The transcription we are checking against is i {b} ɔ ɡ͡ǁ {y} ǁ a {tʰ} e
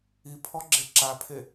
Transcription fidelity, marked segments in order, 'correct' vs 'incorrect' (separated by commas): incorrect, incorrect, incorrect